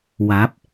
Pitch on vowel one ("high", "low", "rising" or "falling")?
rising